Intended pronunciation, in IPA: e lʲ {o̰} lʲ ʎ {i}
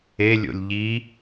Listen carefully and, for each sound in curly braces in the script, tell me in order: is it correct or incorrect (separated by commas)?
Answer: correct, correct